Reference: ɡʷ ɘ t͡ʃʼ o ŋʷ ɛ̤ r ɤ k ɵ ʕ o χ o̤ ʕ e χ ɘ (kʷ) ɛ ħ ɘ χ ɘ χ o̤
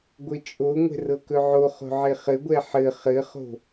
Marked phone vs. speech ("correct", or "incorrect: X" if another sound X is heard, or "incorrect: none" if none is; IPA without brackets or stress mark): incorrect: ɡʷ